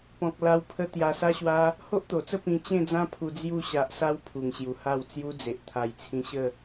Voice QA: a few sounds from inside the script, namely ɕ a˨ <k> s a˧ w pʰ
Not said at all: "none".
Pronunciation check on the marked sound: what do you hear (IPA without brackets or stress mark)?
ʔ